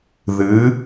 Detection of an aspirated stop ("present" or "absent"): absent